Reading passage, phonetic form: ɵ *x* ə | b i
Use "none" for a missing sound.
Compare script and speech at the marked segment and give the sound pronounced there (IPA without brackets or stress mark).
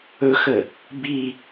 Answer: x